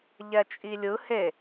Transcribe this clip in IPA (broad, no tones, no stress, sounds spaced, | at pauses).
ʎ ɛ t͡ʃʼ i lʲ ɯ h e